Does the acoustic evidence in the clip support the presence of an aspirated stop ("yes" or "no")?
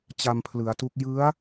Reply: yes